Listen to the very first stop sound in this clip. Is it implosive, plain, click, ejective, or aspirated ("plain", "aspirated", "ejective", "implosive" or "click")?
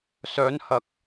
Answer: plain